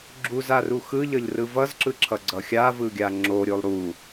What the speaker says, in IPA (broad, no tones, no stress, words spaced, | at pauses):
ɡ͡ǁuzaru xɯʎʌʎrɯ vʌzǁɯǁʰʌɡ͡ǀʌ xʲavɯɡʲa ŋ͡ǁoɾʲolˠ ɾu